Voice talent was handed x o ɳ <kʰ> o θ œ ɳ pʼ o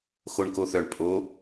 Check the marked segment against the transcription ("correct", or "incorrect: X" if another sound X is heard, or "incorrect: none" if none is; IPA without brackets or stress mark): incorrect: k